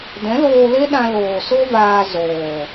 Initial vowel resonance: nasal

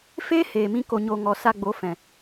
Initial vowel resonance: oral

